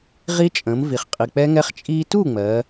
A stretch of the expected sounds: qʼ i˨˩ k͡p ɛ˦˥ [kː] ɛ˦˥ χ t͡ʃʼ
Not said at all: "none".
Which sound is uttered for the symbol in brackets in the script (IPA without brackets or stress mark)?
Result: ŋ